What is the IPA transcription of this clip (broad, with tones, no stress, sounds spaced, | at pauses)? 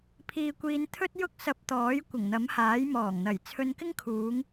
pʰ iː˧ kʷ iː˧ n t̪ʰ ɵ˥ t̚ j ʊ˥ k̚ s ɐ˧ p̚ t̪ ɔː˨˥ j kʷ ɪ˨˩ ŋ n̪ ɐ˨˥ m h aː˨˥ j m ɔː˨˩ ŋ n̪ ɐ˨˩ j t͡sʰ ɵ˧ n k ɪ˥ ŋ kʰ uː˨˧ ŋ